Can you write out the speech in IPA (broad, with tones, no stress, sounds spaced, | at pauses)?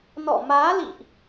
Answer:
n ɔ̰˧˨ m aː˨˦ l ḭ˧˨ ʔ